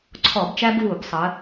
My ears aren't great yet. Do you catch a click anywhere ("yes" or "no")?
yes